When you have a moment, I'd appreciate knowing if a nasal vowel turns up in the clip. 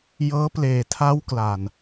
no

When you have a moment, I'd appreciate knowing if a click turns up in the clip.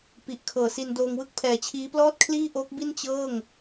no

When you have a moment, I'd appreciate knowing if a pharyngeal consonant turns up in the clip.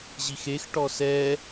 no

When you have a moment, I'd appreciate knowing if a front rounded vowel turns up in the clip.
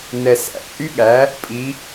yes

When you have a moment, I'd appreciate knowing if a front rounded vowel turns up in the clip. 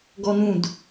no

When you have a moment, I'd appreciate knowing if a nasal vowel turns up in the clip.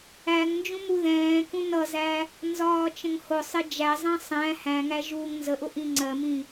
yes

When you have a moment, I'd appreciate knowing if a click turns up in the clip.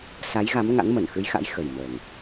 no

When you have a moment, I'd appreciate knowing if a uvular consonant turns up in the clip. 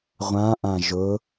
yes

